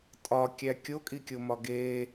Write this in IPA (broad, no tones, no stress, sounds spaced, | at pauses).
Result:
tʼ ɒ kʲ æ kʲ o kʼ i kʲ o m ɒ ɡ eː